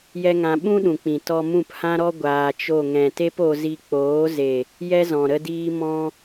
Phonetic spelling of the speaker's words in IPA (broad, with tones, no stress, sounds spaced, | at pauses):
j ɛ˦ ŋ ã˧ ɓ ũ˦ ɗ ũ˨ k͡p ĩ˨ t ɔ˧ m ũ˦˨ p h ã˦ ɾ ɔ˦ ɡʷ aː˧ t͡ʃ o˦˨ ŋ ɛ̃˨ t e˦ p o˧ z i˧ k͡p oː˨˦ z e˨ | j ɛ˦ z ɔ̃˨ ɾ ə˧ d iː˧ m ɔ̃˧